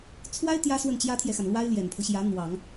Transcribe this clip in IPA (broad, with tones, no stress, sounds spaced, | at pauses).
t͡sʰ w a˥ ɪ̯ t̪ j ä˥ s w ə˥˩ n t͡ɕ j ä˥ t̪ʰ j ɛ˨ x a˩ n l w a˥ ɪ̯ l j ɛ˨˩ n pʰ ɤ˦ ɕ j ä˧˥ n̪ w ɑ˨˩˦ ŋ